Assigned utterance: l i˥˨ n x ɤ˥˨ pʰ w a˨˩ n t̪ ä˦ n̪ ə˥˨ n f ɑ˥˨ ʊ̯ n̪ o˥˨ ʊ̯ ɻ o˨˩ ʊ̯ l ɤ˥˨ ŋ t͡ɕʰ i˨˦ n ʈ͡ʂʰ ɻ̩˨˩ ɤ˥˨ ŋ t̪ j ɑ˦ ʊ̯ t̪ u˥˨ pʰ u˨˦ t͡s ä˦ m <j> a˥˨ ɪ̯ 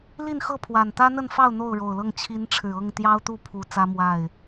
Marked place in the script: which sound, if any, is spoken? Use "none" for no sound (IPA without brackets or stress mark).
w